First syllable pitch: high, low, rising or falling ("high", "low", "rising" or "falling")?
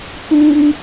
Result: high